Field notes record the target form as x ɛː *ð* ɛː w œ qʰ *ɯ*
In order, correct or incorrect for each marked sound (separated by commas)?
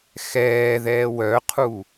correct, incorrect